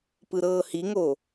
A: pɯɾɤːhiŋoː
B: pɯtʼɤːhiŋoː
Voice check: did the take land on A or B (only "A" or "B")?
A